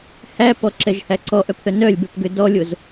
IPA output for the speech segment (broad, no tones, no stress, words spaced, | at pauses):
hæpɔǁɛʒhæ ǀɔʔœpθœ nœlʲbɛpɡø dɔlʲoz